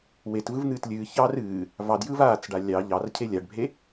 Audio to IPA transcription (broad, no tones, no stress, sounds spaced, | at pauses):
w e t v ɯ v n̪ ɨː t lʲ ɨː ç ɑ r ɨː | v ɑ d j ɯ v aː t͡s ɖ a lʲ ɑ ʎ ɑ r cʰ e lʲ a ɖ bʱ e